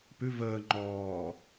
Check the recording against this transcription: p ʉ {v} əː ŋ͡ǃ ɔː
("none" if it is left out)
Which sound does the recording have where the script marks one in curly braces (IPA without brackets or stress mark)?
v